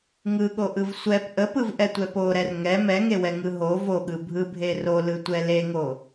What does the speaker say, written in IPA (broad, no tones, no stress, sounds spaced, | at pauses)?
ŋ ɯ ɠ o ʔ ɯ v sʷ ɛ p ʔ ə p ɯ v ʔ ɛ tʷ ɛ p o ɾ ɛ r ŋ ɛ m ɛ ŋ e w ɛ ŋ ɯ ɦ o v o ɠ ɯ bʱ ɯ bʱ e r o l ɯ tʷ ɛ l e ŋ o